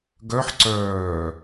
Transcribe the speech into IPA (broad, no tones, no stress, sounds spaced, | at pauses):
ɡ œ ħ ǀ œː